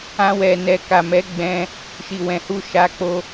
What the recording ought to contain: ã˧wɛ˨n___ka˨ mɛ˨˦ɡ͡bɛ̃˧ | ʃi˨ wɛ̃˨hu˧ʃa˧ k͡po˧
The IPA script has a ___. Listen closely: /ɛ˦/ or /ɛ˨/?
ɛ˨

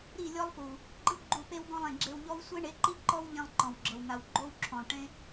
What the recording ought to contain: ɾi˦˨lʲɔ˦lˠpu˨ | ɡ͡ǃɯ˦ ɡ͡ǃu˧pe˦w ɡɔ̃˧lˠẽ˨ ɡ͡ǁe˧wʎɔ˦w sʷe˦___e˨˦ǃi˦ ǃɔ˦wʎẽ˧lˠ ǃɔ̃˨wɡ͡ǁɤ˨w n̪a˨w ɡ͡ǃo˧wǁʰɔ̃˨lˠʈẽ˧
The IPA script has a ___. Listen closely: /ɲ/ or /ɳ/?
ɳ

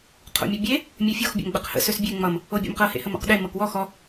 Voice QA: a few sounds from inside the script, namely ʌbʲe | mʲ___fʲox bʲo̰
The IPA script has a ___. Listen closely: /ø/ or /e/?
ø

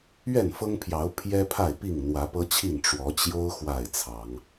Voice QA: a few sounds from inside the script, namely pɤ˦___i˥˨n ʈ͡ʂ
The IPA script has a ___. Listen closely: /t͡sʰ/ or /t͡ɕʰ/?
t͡ɕʰ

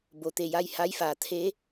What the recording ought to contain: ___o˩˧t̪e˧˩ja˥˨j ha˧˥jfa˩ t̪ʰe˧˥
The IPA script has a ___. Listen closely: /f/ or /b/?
b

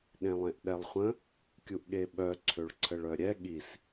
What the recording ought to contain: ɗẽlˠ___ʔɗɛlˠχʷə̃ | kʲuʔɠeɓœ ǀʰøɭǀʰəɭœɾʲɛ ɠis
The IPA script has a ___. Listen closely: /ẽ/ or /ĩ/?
ẽ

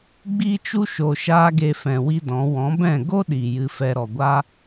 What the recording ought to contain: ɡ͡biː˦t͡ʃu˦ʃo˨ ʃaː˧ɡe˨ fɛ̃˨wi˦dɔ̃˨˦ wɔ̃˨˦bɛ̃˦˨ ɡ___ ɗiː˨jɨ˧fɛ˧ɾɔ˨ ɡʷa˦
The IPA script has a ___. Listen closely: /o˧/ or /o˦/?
o˦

